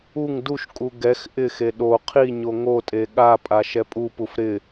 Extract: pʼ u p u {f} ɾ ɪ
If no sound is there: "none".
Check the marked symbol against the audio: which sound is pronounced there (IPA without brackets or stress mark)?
f